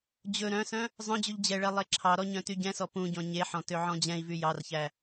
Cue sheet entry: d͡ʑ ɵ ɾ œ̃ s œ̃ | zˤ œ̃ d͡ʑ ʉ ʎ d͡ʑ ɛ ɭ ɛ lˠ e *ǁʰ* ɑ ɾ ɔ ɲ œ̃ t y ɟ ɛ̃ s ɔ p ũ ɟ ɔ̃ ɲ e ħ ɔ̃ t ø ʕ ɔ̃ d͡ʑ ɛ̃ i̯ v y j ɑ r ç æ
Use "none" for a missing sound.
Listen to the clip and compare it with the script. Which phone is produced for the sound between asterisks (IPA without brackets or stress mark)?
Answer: ǁʰ